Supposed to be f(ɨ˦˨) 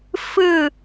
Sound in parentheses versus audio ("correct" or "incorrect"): correct